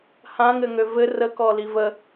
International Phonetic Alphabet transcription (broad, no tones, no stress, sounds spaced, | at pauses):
h ã ŋ ɘ ŋ ø v ɘ r ə k ɔ l i v ə